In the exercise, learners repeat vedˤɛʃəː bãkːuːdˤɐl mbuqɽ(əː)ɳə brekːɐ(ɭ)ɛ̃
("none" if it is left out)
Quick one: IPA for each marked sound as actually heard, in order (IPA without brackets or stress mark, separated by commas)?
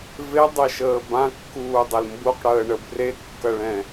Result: əː, ɭ